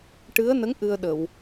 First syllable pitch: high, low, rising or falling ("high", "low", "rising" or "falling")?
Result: rising